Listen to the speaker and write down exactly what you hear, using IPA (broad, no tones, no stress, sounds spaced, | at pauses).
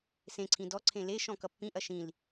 s ẽ ǀʰ ĩ d ɔ ǀʰ ẽ l e ʃ ɔ̃ k ʌ pː ĩ ʔ ɐ ʃ ĩ l